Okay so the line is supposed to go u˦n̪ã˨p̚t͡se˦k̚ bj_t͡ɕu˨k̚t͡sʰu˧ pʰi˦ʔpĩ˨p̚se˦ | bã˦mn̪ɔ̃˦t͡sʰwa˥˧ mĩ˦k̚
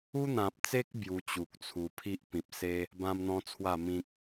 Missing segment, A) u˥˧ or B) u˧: B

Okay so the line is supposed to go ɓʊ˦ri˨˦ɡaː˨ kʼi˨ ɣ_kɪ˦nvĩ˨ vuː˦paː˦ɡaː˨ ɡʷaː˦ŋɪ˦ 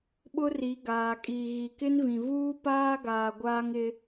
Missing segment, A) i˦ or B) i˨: B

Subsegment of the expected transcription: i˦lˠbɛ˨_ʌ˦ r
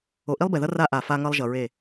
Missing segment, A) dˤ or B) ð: B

